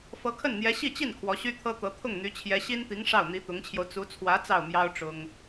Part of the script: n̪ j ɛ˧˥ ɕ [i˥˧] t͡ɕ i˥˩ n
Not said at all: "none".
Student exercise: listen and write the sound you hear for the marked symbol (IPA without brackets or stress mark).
i˥˧